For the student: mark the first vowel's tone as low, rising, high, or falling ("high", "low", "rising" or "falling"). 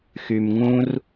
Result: low